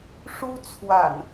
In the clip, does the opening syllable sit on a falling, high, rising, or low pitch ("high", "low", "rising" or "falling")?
high